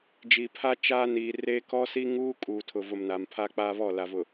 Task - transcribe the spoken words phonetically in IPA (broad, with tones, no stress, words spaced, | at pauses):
d͡ʒi˨pʰa˦ t͡ʃaː˦ niː˨ reː˦ kɔ˦si˦ ŋuː˦ kʼuː˨tʰʊ˨vʊ˨m na˨mpʰa˦k͡pa˦ βɔ˦˨la˨vʊ˨